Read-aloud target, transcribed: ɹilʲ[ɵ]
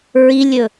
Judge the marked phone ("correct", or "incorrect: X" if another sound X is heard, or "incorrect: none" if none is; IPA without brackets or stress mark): correct